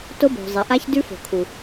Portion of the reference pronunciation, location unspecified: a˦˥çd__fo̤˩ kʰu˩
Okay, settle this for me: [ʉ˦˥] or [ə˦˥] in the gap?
ʉ˦˥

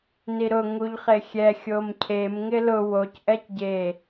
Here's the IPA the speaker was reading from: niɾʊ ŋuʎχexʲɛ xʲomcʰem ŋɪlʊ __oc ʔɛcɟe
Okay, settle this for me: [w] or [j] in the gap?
w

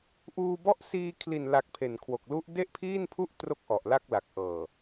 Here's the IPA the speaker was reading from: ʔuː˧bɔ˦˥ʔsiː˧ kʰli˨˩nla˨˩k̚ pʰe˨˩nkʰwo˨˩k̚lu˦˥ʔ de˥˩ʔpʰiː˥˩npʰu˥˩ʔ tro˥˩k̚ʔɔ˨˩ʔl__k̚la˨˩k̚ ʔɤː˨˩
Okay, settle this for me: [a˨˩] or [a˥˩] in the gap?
a˥˩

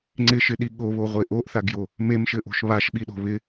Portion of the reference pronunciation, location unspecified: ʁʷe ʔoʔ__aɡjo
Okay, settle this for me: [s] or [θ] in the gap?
θ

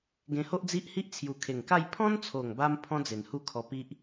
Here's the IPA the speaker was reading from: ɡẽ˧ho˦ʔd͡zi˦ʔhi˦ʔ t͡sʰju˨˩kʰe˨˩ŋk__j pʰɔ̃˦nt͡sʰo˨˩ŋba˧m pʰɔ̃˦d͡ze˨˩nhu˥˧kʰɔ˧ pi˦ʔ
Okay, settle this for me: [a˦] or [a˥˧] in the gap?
a˥˧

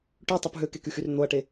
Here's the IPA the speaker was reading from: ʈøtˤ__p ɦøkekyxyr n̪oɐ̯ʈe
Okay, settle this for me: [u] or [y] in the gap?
u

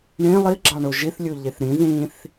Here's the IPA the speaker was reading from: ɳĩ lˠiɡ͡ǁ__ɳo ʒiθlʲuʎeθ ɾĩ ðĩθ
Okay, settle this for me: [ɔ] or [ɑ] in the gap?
ɑ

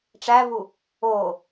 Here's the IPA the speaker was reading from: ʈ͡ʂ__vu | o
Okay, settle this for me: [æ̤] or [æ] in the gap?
æ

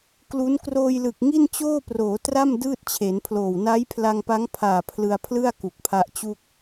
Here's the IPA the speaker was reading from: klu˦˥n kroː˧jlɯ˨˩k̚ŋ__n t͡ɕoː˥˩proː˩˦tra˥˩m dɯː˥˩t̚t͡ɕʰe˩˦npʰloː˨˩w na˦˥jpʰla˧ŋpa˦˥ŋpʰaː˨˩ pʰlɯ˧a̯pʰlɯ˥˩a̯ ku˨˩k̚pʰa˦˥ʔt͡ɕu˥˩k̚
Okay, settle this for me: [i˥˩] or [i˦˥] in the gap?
i˥˩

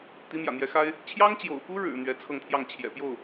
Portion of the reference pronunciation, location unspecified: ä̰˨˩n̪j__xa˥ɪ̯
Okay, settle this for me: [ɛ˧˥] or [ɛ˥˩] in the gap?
ɛ˧˥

